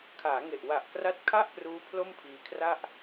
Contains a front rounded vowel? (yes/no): no